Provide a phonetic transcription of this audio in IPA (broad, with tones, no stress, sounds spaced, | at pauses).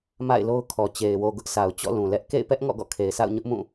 m a̰˦˨ ɪ̯ l o˦ ʊ̯ kʰ ɔ˨ t͡ɕ e˨ ɪ̯ w o˨ ɡ ʊ˦ ʔ s a˨ ʊ̯ t͡ɕ ɔ̰˦˨ l ũ˨ l ɛ˦ ʔ k ḛ˦˨ ɪ̯ p ɛ˦ ʔ ŋ ɔ̰˦˨ ɡ ɔ̰˦˨ kʰ e˨ ɪ̯ s a̰˦˨ ʊ̯ ɲ ʊ˦ ʔ m ũ˦˨